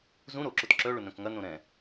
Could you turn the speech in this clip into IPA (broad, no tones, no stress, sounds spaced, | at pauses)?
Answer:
z ũ ɾ o ǁ ʊ t ǁ œ ɭ ʊ n œ̃ k ŋ ɐ n õ ɾ ɛ̃